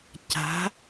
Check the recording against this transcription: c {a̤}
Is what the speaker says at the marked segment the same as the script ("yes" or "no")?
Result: yes